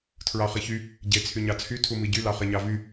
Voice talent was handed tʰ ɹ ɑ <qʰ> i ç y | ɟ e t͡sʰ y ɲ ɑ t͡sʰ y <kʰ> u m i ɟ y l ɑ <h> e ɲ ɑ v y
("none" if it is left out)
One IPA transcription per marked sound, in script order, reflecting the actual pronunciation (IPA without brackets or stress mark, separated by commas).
χ, tʰ, χ